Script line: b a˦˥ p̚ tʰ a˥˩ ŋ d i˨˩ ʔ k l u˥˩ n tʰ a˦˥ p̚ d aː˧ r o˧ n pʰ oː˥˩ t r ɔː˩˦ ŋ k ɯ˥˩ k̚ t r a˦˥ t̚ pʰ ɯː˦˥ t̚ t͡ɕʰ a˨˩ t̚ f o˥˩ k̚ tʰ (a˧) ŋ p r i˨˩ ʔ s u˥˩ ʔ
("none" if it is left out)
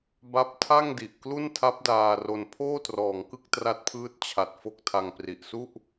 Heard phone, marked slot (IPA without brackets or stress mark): a˧